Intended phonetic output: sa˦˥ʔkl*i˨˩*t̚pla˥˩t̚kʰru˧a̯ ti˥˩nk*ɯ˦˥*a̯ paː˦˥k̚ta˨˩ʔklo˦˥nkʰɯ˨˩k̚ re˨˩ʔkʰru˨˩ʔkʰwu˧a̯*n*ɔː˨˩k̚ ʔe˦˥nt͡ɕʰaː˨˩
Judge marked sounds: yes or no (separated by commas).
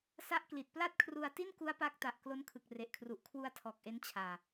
yes, no, no